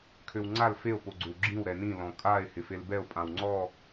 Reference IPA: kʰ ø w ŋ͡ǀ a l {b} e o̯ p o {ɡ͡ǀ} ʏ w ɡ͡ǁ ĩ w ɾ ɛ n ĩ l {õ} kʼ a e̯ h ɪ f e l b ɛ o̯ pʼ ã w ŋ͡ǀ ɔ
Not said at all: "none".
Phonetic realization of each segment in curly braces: f, ɡ͡ǀ, ɔ̃

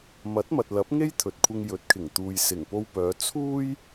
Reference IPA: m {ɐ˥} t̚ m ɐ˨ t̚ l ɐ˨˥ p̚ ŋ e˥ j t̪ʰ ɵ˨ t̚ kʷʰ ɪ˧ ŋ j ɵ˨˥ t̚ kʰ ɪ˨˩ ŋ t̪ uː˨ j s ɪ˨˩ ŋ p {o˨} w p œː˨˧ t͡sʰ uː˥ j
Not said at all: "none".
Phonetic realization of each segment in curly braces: ɐ˨˥, o˧

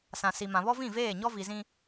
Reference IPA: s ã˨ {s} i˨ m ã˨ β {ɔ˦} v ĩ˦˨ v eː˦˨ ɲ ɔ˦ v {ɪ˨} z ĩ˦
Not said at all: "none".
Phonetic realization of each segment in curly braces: s, ɔ˦, i˨

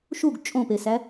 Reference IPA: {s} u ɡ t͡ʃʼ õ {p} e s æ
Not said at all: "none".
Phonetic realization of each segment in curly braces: ʃ, p

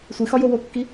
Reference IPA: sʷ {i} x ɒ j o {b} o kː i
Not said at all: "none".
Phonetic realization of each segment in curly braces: i, w

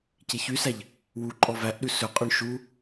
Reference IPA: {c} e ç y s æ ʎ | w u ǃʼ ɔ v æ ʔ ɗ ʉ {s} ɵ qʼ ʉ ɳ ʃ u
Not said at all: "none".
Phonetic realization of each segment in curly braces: c, s

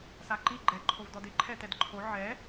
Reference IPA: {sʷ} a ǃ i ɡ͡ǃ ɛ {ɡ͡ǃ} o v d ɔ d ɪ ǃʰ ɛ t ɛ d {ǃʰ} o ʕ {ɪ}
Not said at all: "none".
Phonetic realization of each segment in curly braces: s, ǃʰ, ǃʰ, ɛ

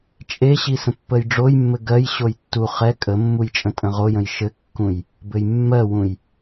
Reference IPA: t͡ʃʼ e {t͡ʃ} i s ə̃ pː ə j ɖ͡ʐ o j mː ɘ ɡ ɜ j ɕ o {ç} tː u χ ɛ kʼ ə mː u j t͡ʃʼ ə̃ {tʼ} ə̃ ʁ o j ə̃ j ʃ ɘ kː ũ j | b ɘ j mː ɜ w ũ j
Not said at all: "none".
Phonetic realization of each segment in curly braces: ɕ, j, tʼ

